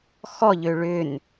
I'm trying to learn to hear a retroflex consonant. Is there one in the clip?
yes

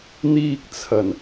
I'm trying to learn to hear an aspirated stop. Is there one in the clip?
yes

